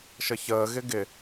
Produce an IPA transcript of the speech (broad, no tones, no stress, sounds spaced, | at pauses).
ʃ ə ç əː ɣ ɪ ɡ ɪ